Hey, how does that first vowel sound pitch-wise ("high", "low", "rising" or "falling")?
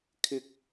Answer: high